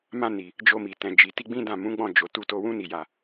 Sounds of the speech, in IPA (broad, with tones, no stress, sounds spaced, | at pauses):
m ã˧ n i˨ | d͡ʒ o˧ m i˨ t ɛ̃˨ d͡ʒ i˨ t i˧ ɡ͡b ĩ˦ d ã˦˨ m ũ˨˦ ɡ͡b ɔ̃˦˨ d͡ʒ o˨ t u˧ t o˧ w ũ˦ n i˦˨ j a˧